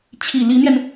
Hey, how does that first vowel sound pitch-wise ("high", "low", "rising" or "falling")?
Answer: low